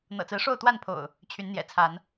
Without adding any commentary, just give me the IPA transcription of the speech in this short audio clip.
n̪ ɤ̰˨˩ t͡s ɹ̩˨˦ ʂ o˥˨ ʊ̯ t̪ w a˥˨ n pʰ o̰˨˩ ʊ̯ | t͡ɕʰ y˨˦ n n̪ j ɛ̰˨˩ t͡sʰ a˨˦ n

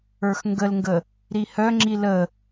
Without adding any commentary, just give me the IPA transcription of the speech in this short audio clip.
ə˞ x ŋ ɡ ə l ŋ ɡ ə | ɾ i h œ ŋ͡ǁ i l ə

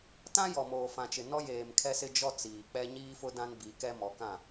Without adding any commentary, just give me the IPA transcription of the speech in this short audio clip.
t ã˦ j ɔ˨ m oː˨ f ã˨ t͡ʃ ɪ˨ n ɔ˦ j eː˨ m kʰ ɛ˦ s ɪ˦ d͡ʒ ɔ˦ t͡s iː˨ k͡p ɛ˦ ɲ iː˦ f ʊ˦ d ã˦ n b i˨˦ k ɛ˦ m ɔ˨˦ k ã˦˨

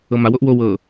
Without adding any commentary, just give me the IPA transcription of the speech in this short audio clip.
ɤ m a w o ʔ w o w ɤ

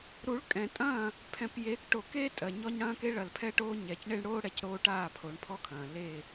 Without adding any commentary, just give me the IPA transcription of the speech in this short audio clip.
ɾ u˨˦ ɭ kʼ ɛ̃˨ tʼ ɐ̃ː˦˨ | pʰ ɛ̃˨ p j e˨˦ k ʈ o˨ k eː˦ tʼ ɜ˨ ɲ ɔ˦ ɲ ɽ ɐ̃ː˦ k e˦ ɭ ɐ˨ l pʰ ɛ˦ ʈ oː˦ ɲ ɛ˨ c ɳ e˦ ɳ ɽ oː˦ ɽ ɛ˨ c ɾ oː˦ ʈ aː˦˨ pʰ o˨˦ ɳ pʰ ɔ˦ kʰ ɐ̃ː˨ l eː˦˨

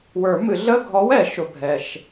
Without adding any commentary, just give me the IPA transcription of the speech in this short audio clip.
w ə˞˨˩˦ m ɨ˨˩˦ ɮ ə˧˥˧ ɡʱ ɔ˨˥ w ɛ˨˩˦ ʃ ʊ˨ bʱ ɛ˨ ʃ

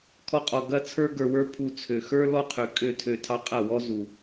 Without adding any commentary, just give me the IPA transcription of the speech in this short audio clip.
kʰ ɔ˦ qʼ ɔ˧ ɡ ɐ˦ t͡sʰ ə˞˦ ɡ ə˞˧ w ə˞˦ pʰ u˧ t͡sʰ ø˨ x ə˞˦ l ɔ˦ qʰ ø˨ kʼ ø˦˨ tʰ ø˧ tʰ ɑ˧ qʼ ɐ˦˨ w ɔ˦ z u˨

